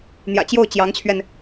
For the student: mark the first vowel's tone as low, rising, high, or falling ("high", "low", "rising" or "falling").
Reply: low